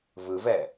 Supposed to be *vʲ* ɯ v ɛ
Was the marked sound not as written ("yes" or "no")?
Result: yes